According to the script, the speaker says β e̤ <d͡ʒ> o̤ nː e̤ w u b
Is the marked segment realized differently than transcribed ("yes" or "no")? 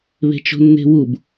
yes